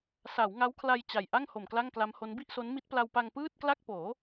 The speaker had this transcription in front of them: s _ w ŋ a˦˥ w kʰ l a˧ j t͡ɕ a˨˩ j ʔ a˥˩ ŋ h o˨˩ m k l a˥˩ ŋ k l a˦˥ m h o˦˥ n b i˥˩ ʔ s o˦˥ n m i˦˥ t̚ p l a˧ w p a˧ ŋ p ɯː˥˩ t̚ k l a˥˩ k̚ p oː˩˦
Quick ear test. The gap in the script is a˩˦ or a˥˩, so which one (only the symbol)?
a˩˦